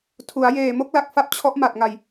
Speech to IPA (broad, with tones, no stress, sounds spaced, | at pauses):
tʰ u˩˦ a̯ j eː˨˩ m o˦˥ k̚ l a˨˩ k̚ f a˥˩ p̚ t͡ɕʰ ɔ˦˥ ʔ m a˨˩ t̚ ŋ a˧ j